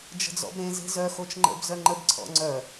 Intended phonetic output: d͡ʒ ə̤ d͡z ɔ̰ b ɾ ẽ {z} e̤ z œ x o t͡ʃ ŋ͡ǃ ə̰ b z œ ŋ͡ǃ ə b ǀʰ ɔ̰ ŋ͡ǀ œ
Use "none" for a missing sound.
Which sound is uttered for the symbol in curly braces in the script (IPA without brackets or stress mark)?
z